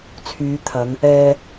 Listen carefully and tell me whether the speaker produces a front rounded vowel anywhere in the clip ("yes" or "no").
yes